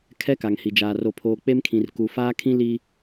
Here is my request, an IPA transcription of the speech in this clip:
kʰɛ˦ka˨ŋhi˨d͡ʒaː˨ ro˨pʰoː˨k͡pe˦mkʰĩ˨r ku˨faː˦kʰĩ˦ li˦

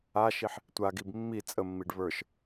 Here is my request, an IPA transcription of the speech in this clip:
aʃiħ | tʷaɡib mːi t͡sʼəmːiɖ βə˞ʃ

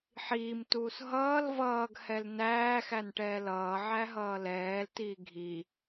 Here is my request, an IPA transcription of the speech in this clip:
ħiːmtuːs ɦʌːl vʌːɡhɛl næːxænʈɛː lʌːʕæɦʌː lɛːltiː ɡʱi

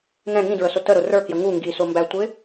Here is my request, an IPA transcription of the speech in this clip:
ŋɛ̃ ŋĩdɹəsʊ təɾʊ rə˞kjə ŋu ŋɡisʊmbætʷɪ

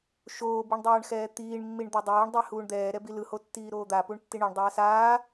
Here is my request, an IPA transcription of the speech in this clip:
ʃoː buɳdˤaːɳxɛːt̪iːɳ mːiɳd̪ɔdˤoːɳ dˤihuːɳd̪ɛː ɾɛbilɯ hotːiːɾoːd̪a puɳtːiɳoɳ dˤaːsaː

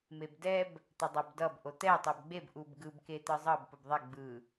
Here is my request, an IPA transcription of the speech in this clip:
mebdɛb | t̪ʌdˤebdʌb ʔot̪ɛ tˤʌbɡ͡beb ʔubɡɯb ket̪ɯzˤʌb pobðˤɛ ɡ͡bɯ

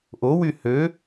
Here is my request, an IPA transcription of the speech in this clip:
ʔowy hø

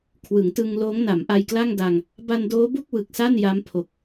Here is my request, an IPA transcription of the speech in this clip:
kʰwɯ˩˦ŋtɯ˧ŋloː˦˥ŋna˩˦m ʔa˧jkla˥˩ŋda˧ŋ | ba˧ndoː˦˥bu˥˩k̚ wɯ˨˩k̚sa˥˩n ja˦˥mpʰo˨˩k̚

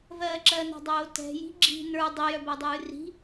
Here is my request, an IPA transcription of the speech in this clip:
vɜǁɜnɛ̤dˤoː tɛ̤ji̤ ɡ͡ǁi̤ nə˞ dˤijœbɜdˤɨː ri̤

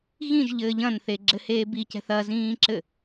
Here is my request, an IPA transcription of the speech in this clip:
ɣĩʒʎɘː ʎɐ̃nθeɡ͡ǁɘheː bicɛ̤θ ɐzĩːǁɘ

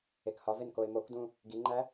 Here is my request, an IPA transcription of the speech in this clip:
ekhɒven koɪ̯mokdũ | ɡiŋ͡ǃæ

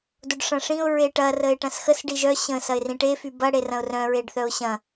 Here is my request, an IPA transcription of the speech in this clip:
doɖʂɐ̃ʂĩʊ̯ ɹeʈɐ rəɪ̯ʈɐ̃sxəs ɖiʒœ ɕə̃ sɐɪ̯rĩʈe fybɐ ɽerɐ̃ʊ̯rœ̃ ɹeɖθœʊ̯ɕɐ̃

